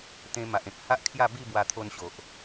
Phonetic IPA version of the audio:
t̪ ẽ˧ m a˨ ʔ ẽ˨ k̚ h a˦ ʔ kʰ j a˥˧ b i˥˧ b w a˧ t̪ʰ o˧ n ɕ o˨ ʔ

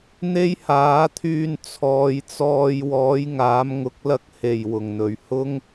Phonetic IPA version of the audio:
n̪ e˥ j h aː˨˥ t̪ʰ yː˧ n t͡sʰ ɔː˨˧ j t͡s ɔː˧ j w ɔː˨˥ j ŋ aː˨˥ m ŋ ʊ˨˥ k̚ l ɐ˧ k̚ h e˨˩ j w ʊ˨˩ ŋ n̪ ɵ˨˩ ɥ h ʊ˥ ŋ

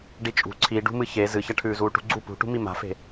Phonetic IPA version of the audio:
ɖ i t͡ʃʼ ṳ ǀʰ i ɖ ṳ m ɨ ç e z ɨ ç ɐ ʈʰ ʉː z uː ʈ ṳ ɡ͡ǀ u p ṳ ʈ ṳ m i m a̤ f e̤

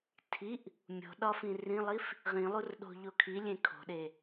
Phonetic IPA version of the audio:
tʰ i ʔ | mʲ o̤ ɗ ɒ f ĩ r ĩ lˠ i f | ʁ ĩ lˠ u r ɗ o̤ ʎ o kʰ i lʲ ẽ kʰ o̤ ɗ e

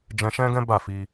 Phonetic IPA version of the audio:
d͡ʒ ɛ̃˧ ʃ ɛ̃˦ ɡ ɛ̃˦ b a˦˨ f i˧

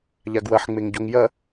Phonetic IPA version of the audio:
ʎ a ɡ w ɐ ħ ŋ͡m e ŋ ɟ o ŋ j ɐ

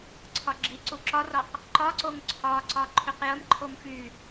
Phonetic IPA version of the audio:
ǀʰ ɒ ɡ͡ǁ i ǀ u ǁ ɒ r ɒ q | ǃ ɒ ǀ o ŋ ǀʰ ɒ ǀ ɒ ǃʰ y q j ə m ǃʰ o m f y

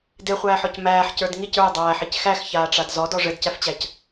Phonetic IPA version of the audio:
d e χʷ æː ħ ɔ c m æː ħ c ə˞ d ŋ i c ə˞ j dˤ æː ħ i c x æ x ç aː ʈ͡ʂ a d z ɔ d ɔ ʐ ɘ d c æ f t͡ɕ æ c

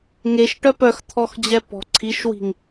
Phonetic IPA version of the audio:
ŋ e ʃ ʈ œ p œ x t̪ʰ ɔ x d͡ʑ ɛ p ɔ̤ ǀʰ i ʃ w i̤ ŋ

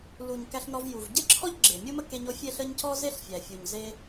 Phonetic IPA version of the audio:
l u˨ ɲ k æ˧ ɬ n ɔ˧ v j u˨ v ɟ e˦ ǁʰ ɔ˦ ʎ ɡ͡ǁ e˨ mʲ o˦ m ə˦ k e˧ ɲ o˨˦ fʲ e˦ ɬ ə˦ ɲ c ɔ˦ z e˦ ɬ fʲ æ˨ fʲ u˨ ɲ z e˦

